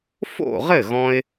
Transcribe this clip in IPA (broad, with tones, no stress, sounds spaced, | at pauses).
f o̰˥˩ ʁ ɘ˥˩ ɣ ɔ̃˧ ɪ̯